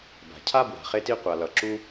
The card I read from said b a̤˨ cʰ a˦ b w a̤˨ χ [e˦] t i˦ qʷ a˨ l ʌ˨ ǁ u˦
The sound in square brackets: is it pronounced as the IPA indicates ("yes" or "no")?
yes